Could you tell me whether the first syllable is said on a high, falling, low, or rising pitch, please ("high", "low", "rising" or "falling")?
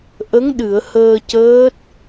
rising